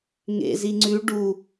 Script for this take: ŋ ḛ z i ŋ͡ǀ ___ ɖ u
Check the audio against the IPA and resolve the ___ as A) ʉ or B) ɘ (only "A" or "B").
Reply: A